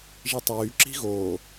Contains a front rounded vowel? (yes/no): yes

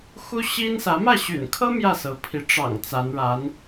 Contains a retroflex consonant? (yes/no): yes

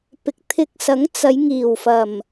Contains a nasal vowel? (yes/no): no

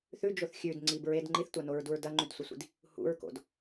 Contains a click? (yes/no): yes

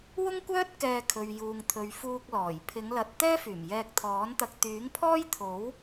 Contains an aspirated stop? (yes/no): yes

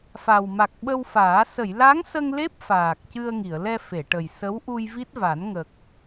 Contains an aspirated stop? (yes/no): no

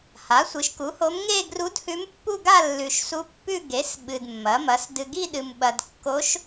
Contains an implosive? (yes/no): yes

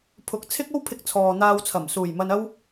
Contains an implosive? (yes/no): no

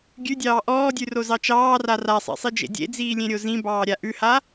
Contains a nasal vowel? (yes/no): yes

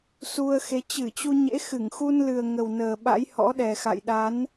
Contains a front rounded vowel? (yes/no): no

